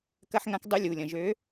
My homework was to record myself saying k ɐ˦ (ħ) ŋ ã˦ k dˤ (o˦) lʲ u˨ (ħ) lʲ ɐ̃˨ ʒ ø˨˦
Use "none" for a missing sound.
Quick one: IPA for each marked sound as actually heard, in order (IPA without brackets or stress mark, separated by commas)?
ħ, u˦, none